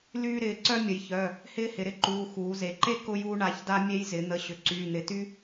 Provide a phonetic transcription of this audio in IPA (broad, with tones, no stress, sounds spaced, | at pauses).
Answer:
l yː˥ ɾ ɪː˩˧˩ ǀ œ˥ mʲ ə˩˧ j ç œ˩˧˩ | h ɪː˥ h ɪ˩˧ ɾ ɪ˥ ǃ uː˩˧˩ x uː˩˧ z e˩˧ ǃ e˥ k ʊ˥ j uː˥ ɳ a˩˧˩ ç d a˥ mʲ e˥ j z ɪ˩˧ n̪ ə˩˧˩ ɕ ʏ˩˧ ǀ yː˩˧˩ n̪ ɪ˩˧˩ t y˥